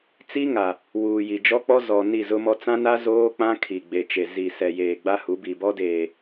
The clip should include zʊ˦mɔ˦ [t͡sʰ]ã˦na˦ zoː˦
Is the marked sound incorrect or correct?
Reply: incorrect